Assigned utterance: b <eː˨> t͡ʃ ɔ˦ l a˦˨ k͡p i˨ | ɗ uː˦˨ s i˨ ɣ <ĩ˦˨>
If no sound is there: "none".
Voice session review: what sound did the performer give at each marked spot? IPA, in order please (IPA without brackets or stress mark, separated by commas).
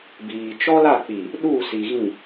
iː˨, ĩ˦˨